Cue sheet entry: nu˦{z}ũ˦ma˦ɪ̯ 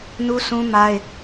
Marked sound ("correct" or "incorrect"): incorrect